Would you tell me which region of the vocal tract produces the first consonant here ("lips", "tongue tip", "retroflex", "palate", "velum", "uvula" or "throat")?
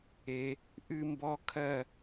throat